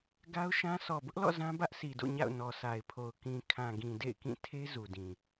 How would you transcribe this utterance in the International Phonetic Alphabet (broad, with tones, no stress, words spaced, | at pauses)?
ɡa˦ʊ̯ʃã˦ sʰɔ˨bʊ˦ʔlɔ̰˦˨ zã˦ bä˦ʔsʰi˨do̰˦˨ ɲa̰˦˨ʊ̯ nɔ˨sʰa˨ɪ̯pʰo˨ʊ̯ kĩ˨kʰã˨ɡĩ˨ dḛ˦˨ɪ̯kĩ˦˨ tʰe˦ zu˨dĩ˨